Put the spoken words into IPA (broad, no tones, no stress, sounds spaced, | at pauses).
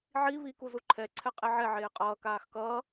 ʕ i β i k u z u ǃʰ ɛ ǀʰ ɛ qʼ e ʕ ɛ ʕ eː qʼ ʌː k aː x k ʌː